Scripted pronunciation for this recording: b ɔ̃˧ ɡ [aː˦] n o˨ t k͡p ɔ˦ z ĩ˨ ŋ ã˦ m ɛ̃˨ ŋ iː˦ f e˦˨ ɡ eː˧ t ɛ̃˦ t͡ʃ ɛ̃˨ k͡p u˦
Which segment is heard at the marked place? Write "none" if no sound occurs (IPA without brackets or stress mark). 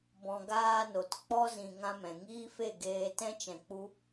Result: aː˦